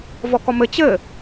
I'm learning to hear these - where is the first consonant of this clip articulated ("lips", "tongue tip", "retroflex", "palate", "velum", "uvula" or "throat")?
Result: lips